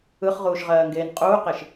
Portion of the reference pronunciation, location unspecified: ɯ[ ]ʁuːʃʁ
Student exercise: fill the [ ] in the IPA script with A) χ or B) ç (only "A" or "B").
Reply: A